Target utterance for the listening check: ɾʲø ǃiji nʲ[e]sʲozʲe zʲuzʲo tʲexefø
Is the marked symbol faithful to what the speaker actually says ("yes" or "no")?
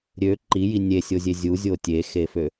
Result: yes